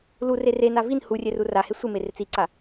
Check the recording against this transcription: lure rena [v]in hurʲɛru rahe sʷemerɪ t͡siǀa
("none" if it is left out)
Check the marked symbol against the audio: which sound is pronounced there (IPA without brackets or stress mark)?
v